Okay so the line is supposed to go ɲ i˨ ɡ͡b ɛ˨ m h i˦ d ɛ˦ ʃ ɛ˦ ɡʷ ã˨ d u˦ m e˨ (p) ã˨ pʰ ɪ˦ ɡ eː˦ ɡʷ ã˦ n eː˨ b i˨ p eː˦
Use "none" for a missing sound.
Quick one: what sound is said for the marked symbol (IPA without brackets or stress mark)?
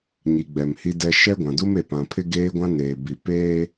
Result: p